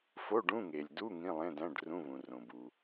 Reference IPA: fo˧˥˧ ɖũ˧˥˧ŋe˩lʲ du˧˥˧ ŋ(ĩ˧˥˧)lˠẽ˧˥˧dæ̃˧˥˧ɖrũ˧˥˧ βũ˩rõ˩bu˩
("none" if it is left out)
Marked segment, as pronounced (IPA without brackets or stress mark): ĩ˧˥˧